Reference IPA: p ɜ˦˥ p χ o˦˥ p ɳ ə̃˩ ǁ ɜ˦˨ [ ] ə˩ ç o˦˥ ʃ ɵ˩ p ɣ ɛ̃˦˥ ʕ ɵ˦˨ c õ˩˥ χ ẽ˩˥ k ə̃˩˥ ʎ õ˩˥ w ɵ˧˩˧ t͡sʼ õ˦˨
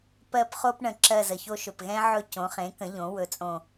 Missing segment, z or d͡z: z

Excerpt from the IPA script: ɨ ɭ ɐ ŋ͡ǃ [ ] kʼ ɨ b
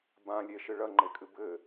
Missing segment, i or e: e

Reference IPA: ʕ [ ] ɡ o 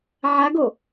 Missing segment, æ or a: a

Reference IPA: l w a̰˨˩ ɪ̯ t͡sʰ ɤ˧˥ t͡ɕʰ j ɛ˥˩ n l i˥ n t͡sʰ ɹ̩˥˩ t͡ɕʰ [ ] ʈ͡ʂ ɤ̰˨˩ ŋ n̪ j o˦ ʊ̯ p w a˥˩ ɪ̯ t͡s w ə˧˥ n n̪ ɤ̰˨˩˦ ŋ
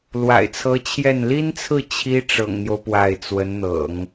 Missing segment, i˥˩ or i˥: i˥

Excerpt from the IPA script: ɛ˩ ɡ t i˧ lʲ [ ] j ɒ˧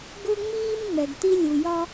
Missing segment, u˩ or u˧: u˩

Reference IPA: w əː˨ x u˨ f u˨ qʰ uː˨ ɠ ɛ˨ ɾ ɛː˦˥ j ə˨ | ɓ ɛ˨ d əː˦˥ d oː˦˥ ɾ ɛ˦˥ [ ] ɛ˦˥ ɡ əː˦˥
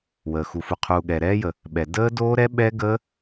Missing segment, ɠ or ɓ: ɓ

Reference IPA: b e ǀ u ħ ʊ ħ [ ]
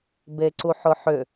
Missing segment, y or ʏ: ʏ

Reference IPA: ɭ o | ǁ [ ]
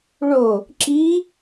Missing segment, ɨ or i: i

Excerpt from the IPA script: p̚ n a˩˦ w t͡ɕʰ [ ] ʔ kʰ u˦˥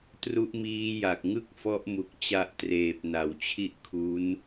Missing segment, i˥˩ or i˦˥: i˥˩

